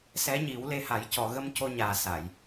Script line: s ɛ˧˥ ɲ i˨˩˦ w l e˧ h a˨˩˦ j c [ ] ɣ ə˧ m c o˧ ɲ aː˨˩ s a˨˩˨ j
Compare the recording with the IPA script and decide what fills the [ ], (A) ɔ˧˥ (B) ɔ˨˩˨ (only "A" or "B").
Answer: B